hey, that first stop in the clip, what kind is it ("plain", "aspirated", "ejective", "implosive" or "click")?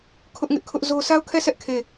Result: aspirated